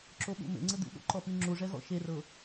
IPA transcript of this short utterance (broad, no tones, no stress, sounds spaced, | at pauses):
ǁ o ɓ ṵ m ḛ ŋ͡ǀ ɯ d̪ ṵ ɠ o̰ ǃ ɔ p i ŋ͡ǁ u ʐ ɛ ɣ ɔ̰ ʃ e r ɤ